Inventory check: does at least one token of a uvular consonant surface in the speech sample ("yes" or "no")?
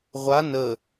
yes